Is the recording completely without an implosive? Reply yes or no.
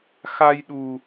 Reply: no